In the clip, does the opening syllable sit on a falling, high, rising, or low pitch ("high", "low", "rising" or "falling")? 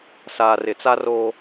low